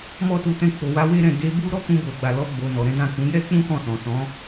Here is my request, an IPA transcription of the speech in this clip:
m ɔ˧ t u˨ t ɛ̃˧ k͡p o˨ w a˧ w e˦ ɾ ɛ̃˦˨ d e˧ b u˦ ɾ ɔ˦ k ũ˧ b o˨ ɡ͡b a˨ l ɔ˧ ɡ͡b o˨ n ɔ˨ ɾ ɛ̃˨˦ d ã˦˨ k ũ˨˦ j ɛ˦ k͡p ũ˦ k ɔ̃˦˨ s ɔ̃˨ s ɔ̃˨˦

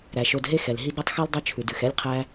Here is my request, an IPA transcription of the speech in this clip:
ɾ æ˩ ʃ o˨ d ɦ e˦ x ɛ˩ l ɦ i˦ d ɾ ʉ˥ tˤ x ʉ˥ l dˤ ɵ˦ t͡ʃʰ ʉ˩ d ʉ˩ x ɛ˥ lʲ qʰ æ˦

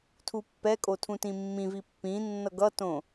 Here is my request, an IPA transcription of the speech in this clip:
tʰ u pː ɛ kʼ o tʰ ũ t ĩ mː ĩ v i pː ĩ nː ʌ ɡ ʌ t õ

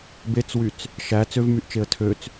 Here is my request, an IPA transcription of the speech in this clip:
b e t͡s w y t͡s | ʃ æ t͡s ø v m y ʔ t͡ʃ e ə̯ tʰ ø t͡s

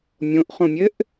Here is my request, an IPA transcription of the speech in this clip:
mʲ õ ʔ χ õ mʲ ɘ ʔ

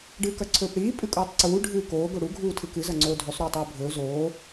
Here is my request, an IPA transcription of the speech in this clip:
ɖ ɨː k ɐ ǀʰ ɵː p ɽ iː pʼ ɨ kʼ uː tˤ ǀ uː ɖʱ ɨː k oː ɡ o ɽ u ɡʱ uː tʰ ɨ k ɨ z ɐ ŋ͡ǀ oː dʱ ʉ sˤ ɾ uː tˤ ɨː bʱ ɵː z oː

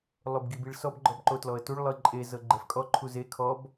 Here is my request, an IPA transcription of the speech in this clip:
lˠ o b ɡ i b i ɭ s ɔ b ɡ͡ǃ ɔ b ǃ o t l ɔ ə̯ t u ɭ lˠ ɯ ǃʼ e z ɤ ɡ͡ǃ ɛ f kʼ ɔ ǃʰ u z e kʰ ɔ b

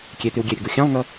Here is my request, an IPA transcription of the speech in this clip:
kʲ e t̪ y w ɡʲ e ɾʲ ʊ ɡ u xʲ ɑ̃ lˠ ŋ ʌ

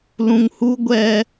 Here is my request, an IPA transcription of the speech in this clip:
l ũ˨ ŋ h u˦ ɡʷ ɛ˦

